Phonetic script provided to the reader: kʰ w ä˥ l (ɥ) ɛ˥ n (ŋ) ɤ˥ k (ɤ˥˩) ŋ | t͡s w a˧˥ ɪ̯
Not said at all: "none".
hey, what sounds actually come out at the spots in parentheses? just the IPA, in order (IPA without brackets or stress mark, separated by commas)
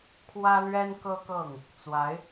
ɥ, k, ɤ˥˩